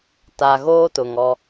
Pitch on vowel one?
low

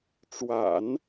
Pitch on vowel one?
low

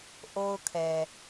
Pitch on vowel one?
high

